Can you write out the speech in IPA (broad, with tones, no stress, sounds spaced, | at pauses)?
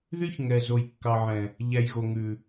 ð y˦ ç ŋ ɛ˨ z o˨ j kː ɑ˨ ʕ ɛ̃˨ | ʎ æ˨ j ɣ o˨ ŋ ʉ˨